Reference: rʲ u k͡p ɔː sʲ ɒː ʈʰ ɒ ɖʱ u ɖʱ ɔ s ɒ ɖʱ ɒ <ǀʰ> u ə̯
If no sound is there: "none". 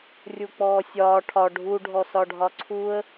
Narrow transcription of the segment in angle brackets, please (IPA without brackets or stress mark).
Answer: ǀʰ